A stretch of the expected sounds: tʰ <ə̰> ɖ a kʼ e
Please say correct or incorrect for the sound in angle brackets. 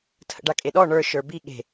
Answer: correct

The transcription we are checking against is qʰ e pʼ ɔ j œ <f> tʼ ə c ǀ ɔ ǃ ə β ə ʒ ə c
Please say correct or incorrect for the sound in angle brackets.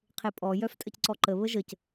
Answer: correct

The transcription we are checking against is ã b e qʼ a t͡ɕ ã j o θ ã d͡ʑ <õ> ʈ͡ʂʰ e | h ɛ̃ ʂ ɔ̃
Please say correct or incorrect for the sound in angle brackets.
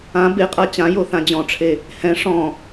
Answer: incorrect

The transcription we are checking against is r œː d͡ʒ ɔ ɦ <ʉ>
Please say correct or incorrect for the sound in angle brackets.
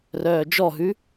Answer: correct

